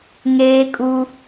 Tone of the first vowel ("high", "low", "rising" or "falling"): high